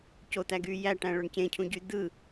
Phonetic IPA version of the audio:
cot̪æɡyː jæʈæ̃ɭøɳ cẽcʰũɟy d̪ɯ

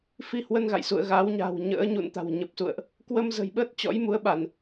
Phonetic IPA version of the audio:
fi˧hwə˧nɣa̰˧˨jsṵ˧˨ə̯ ɣa˨˦wɲa̤˨˩wɲə̰ː˧˥ ɲṵ˧˨nt̪a̤˨˩wɲə˨˩p̚sṵ˧˨ə̯ʔ | kwə˧mzə̤˨˩jɓə˦˥t̚ t͡ɕɔ̰˧˥jmu˨˦ə̯ɓa˧˩˨n

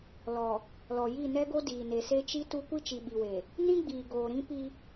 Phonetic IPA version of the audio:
lɔ˨ | lɔ˨ ji˦˨ nɛ˦ɡo˦diː˨ ne˨se˦t͡ʃi˦tu˦ kʷi˦t͡ʃi˨ɓi˨we˨ | nĩ˦ɡ͡biː˨ ɡoː˨ɾĩ˦pi˦

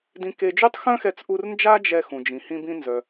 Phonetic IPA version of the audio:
dĩ˧ke˧ d͡ʒy˥tˤxœ̃˥xɛ˧t͡sʔu˧r nd͡ʒa˥ d͡ʒɛ˧ xũ˩d͡ʒĩ˩ hĩ˧bĩ˧ nzœ˩

